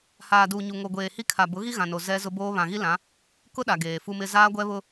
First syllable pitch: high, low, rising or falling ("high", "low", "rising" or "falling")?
low